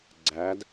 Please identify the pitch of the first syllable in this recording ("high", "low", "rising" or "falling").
rising